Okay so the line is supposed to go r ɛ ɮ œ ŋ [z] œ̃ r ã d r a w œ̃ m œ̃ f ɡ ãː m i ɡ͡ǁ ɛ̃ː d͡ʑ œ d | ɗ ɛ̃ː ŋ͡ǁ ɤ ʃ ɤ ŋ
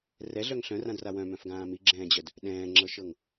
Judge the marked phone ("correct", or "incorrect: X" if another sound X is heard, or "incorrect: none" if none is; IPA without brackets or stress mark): incorrect: ɬ